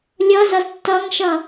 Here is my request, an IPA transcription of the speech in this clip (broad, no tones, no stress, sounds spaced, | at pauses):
lʲ ʌ z ʌ z tː ʌ ŋ ʃ ʌ